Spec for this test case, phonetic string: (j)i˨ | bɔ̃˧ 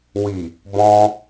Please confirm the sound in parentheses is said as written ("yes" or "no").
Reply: no